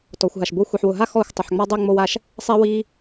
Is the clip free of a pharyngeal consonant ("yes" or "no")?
no